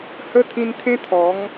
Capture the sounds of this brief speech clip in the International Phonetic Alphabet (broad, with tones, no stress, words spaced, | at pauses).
hə˦t̪ʰĩ˧nt̪ʰẽ˦ t̪ʰɔ˨˦ŋ